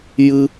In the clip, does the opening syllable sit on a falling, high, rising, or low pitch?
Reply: high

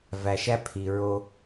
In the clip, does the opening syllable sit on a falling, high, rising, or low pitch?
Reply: low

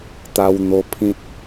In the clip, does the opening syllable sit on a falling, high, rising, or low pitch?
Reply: high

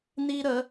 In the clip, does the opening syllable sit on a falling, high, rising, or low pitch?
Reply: high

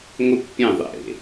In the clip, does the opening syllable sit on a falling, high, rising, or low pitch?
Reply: high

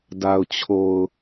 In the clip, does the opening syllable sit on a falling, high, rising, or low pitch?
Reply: low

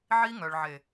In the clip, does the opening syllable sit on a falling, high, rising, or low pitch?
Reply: high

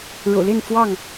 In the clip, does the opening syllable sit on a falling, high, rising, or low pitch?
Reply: low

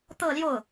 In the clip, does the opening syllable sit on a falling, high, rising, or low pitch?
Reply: falling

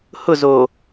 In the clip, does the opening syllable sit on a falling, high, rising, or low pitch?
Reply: falling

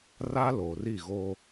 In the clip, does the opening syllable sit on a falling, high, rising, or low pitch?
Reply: high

